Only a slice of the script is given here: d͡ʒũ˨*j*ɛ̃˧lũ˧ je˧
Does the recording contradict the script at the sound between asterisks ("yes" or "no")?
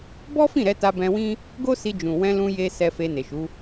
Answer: yes